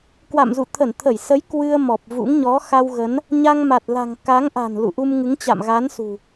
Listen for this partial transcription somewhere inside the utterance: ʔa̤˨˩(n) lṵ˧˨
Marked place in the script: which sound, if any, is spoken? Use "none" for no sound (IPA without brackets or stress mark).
n